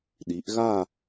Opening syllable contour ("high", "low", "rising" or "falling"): rising